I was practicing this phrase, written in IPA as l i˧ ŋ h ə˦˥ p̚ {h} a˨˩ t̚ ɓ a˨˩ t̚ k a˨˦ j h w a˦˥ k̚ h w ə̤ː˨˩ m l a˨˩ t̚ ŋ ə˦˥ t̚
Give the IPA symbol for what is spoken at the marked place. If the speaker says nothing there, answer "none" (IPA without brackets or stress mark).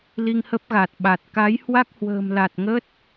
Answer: ɣ